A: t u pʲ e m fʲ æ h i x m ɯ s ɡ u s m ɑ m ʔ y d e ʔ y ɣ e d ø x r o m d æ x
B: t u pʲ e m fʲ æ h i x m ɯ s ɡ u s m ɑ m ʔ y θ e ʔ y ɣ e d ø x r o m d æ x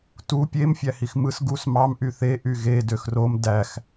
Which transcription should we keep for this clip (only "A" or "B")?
B